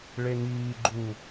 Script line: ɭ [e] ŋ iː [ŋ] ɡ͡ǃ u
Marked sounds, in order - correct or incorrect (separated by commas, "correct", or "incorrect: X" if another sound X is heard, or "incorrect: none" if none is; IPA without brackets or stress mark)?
correct, incorrect: none